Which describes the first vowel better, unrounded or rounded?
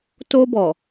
rounded